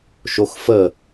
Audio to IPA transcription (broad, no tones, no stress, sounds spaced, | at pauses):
ʃ o x f ə